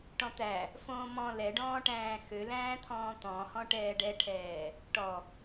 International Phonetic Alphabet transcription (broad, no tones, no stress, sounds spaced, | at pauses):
ʈ ɔ̃ t̪ æ | f õː m ɔ̃ l ɛ ɖ ɔ̃ː ʈ æ̃ː x ø l æ̃ː t̪ʰ ɔ̃ː t̪ ɔ̃ h ɔ̃ ʈ ɛː ɖ ɛ ʈʰ ɛː | ʈ ɔ